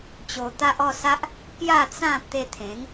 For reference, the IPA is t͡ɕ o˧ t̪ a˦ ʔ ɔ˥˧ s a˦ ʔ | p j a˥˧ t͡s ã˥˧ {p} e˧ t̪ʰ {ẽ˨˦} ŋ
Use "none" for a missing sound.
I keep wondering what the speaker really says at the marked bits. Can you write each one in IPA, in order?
t̪, ẽ˨˦

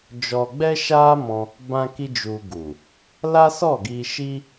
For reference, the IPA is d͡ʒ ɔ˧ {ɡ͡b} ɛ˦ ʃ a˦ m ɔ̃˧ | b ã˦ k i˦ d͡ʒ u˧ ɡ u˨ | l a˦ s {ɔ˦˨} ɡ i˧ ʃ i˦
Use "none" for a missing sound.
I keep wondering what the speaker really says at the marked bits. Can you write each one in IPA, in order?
ɡ͡b, ɔ˦˨

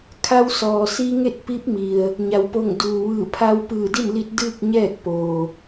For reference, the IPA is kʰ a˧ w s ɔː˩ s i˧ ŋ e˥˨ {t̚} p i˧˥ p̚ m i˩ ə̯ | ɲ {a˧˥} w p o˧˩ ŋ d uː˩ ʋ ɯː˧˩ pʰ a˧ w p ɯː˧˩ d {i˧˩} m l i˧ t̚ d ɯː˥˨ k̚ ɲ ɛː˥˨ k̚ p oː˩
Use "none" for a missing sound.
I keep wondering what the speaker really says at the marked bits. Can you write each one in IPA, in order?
t̚, a˩, i˥˨

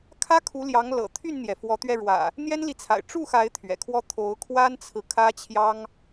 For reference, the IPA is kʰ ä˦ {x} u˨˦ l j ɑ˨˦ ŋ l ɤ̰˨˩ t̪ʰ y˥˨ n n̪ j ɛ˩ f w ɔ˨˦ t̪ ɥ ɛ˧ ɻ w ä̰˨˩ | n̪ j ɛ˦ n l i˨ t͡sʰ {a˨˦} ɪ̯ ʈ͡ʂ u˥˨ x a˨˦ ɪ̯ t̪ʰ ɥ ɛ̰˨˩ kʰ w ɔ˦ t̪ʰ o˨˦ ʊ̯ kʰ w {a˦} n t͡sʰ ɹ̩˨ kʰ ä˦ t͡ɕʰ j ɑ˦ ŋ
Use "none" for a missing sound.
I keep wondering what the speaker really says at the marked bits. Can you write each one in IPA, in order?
kʰ, a̰˨˩, a˦

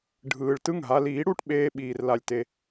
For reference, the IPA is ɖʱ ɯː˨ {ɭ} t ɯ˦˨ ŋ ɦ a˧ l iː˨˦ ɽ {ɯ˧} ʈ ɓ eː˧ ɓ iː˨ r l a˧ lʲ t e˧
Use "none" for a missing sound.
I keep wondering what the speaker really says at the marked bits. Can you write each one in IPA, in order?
ɭ, u˧

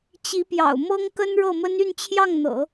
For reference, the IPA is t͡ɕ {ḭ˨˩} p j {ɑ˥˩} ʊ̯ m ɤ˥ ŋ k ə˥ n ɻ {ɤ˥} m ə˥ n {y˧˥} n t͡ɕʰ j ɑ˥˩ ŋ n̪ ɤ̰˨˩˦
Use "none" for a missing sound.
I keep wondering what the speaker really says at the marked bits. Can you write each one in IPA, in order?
i˧˥, ɑ̰˨˩, ɤ˥˩, y˥˧

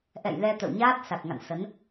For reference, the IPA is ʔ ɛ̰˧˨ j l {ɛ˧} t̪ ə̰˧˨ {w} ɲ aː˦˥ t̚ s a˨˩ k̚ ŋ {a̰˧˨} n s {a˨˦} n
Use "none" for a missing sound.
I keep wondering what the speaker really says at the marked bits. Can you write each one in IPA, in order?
ɛ˧, w, a̰˧˨, ə˨˦

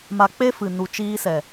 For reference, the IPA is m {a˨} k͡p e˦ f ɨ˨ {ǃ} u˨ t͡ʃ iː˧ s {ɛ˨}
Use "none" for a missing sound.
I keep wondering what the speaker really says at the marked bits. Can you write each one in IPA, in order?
a˨, n, ɛ˨

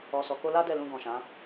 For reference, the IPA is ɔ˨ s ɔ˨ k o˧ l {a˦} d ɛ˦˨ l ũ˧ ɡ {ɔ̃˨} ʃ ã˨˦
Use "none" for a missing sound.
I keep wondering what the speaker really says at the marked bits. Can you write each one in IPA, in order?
a˦, ɔ̃˨

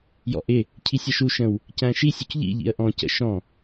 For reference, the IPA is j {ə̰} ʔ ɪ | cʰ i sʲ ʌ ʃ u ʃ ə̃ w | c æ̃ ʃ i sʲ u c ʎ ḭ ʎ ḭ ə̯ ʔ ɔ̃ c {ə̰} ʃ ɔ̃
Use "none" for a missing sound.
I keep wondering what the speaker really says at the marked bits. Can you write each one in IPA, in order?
ɔ̰, ə̰

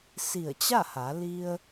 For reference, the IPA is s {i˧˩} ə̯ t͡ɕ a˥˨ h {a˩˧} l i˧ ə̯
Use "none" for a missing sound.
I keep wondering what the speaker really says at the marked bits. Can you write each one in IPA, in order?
i˧˩, a˩˧

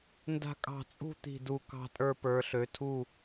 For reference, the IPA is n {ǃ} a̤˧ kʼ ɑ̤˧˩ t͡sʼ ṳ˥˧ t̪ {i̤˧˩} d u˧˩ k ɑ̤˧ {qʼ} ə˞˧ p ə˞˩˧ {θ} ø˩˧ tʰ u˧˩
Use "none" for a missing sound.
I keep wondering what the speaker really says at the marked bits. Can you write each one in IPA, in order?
d, i̤˧˩, tʼ, ɬ

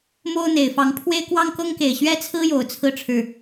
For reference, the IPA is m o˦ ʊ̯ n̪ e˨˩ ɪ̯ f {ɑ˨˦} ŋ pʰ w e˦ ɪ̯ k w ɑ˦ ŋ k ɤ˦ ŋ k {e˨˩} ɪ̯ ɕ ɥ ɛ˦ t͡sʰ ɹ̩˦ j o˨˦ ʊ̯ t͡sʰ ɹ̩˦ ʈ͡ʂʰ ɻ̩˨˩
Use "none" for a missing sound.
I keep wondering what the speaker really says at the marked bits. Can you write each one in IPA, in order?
ɑ˨˦, e˨˩

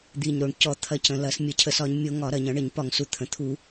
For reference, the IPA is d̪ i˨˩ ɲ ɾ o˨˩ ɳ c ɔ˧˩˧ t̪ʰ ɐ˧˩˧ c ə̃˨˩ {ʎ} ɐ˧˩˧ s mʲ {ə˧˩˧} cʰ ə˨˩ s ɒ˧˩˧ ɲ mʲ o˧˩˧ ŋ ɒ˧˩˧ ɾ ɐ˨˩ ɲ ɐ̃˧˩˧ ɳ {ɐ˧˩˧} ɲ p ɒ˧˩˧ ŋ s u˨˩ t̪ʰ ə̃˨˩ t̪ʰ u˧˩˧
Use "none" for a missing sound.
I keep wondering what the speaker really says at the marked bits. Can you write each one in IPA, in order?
l, ə˧˩˧, ə˧˩˧

